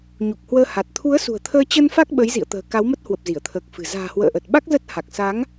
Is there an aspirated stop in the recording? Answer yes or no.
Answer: yes